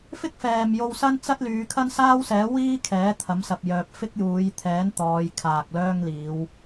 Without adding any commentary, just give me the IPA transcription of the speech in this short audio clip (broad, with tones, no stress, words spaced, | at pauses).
fɪ˥k̚fɛː˨mjo˧w sɐ˥nt͡sɐ˥t̚ lyː˨˧kʰɐ˥n saː˥wsɛː˨˥wiː˥ kʰɛː˨˥t̪ʰɐ˨˥msɐ˨p̚ jœː˨p̚fɪ˥k̚juː˨˧j t̪ʰɛː˨˥n t̪ɔː˨˧j kʰaː˨k̚ lœː˥ŋliː˨˧w